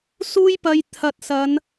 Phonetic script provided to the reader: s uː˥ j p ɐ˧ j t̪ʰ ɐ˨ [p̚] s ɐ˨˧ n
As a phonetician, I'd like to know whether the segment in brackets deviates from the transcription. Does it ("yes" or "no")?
yes